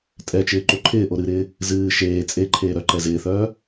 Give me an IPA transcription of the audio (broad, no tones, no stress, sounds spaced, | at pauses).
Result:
tʼ ɛ t͡ʃ ɪː ǃ o ǃʰ ɪː ʔ o ɾ ɨ ɾ ɪː | z ɨː ʃ eː t͡sʼ e ǃʰ eː ɾ œ ǃ ɛ z ɪː θ œː